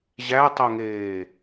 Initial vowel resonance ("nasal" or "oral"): oral